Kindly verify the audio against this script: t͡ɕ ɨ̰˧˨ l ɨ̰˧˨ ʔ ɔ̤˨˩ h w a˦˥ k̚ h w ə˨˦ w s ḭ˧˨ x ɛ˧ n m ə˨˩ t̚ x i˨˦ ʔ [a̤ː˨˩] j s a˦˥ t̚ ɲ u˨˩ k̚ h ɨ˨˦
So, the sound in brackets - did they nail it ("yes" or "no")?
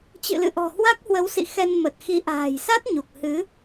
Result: yes